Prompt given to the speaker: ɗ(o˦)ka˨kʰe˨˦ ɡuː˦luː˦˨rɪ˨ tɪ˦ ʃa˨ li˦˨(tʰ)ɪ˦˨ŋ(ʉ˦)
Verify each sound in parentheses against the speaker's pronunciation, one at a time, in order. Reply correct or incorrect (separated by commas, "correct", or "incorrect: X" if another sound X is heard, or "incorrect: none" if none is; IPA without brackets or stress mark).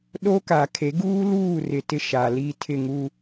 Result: correct, correct, incorrect: u˦